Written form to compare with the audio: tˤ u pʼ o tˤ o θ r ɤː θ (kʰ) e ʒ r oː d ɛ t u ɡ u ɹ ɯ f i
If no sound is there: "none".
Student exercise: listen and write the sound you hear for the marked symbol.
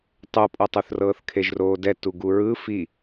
kʰ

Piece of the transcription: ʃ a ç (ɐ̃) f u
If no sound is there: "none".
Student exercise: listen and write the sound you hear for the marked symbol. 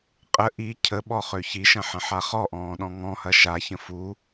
ə̃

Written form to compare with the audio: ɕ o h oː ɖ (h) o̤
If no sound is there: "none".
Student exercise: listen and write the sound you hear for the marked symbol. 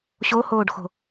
x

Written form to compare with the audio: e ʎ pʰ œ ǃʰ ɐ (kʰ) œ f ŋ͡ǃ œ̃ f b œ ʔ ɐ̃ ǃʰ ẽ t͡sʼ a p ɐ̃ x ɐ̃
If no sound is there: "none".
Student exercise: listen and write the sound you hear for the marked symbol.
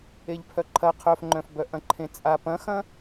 qʰ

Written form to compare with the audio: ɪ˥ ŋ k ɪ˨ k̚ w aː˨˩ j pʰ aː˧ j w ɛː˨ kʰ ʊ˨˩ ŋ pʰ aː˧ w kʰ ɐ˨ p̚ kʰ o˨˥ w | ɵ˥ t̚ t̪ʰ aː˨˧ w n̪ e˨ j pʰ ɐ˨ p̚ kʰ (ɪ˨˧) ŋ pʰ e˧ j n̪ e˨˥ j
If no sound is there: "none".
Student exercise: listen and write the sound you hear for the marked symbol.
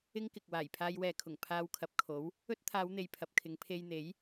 ɪ˨˧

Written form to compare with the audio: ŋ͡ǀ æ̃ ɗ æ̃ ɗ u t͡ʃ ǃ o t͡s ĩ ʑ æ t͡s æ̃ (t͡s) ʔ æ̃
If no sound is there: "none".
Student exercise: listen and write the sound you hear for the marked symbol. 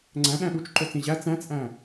t͡s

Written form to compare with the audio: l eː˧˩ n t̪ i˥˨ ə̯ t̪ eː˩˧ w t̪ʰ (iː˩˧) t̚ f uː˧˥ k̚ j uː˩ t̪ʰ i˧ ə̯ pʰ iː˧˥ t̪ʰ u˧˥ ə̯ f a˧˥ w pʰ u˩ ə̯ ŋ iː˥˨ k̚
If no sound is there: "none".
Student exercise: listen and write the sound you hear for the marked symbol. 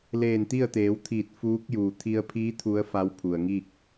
iː˧˩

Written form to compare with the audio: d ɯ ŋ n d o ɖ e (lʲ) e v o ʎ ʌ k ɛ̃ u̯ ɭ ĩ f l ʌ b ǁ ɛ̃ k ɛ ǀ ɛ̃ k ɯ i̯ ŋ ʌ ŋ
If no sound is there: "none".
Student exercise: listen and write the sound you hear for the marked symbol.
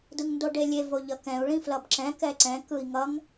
lʲ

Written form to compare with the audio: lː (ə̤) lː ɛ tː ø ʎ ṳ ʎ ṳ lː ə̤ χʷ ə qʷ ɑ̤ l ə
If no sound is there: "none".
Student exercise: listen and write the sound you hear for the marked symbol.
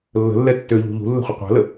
ə̤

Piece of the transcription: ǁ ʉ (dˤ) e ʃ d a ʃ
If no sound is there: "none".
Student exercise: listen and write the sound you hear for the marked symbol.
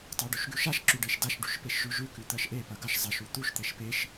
ɖ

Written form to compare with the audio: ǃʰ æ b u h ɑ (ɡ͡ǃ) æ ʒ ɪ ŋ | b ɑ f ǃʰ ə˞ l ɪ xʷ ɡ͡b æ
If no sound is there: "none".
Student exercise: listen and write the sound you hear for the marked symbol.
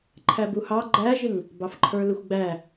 ɡ͡ǃ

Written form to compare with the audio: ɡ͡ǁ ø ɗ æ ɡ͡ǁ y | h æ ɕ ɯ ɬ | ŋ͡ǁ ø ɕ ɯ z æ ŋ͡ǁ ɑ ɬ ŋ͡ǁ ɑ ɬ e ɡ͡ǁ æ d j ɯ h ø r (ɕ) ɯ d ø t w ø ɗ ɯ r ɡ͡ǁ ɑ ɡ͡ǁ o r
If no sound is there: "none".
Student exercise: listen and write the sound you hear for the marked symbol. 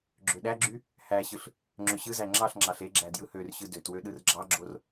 ɕ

